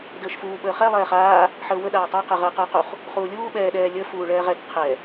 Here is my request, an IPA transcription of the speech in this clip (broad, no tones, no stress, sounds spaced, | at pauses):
d əː ʃ f uː ɓ əː χ ɛ lˠ ɛː χ aː | ħ əː w ə ɗ aː tˤ a q ɛ ʁ əː q əː q u χ | χ uː lʲ uː ɓ ɛː ɗ ɛː lʲ əː f uː ɭ ɛː ʁ ɛ t qʰ ɛ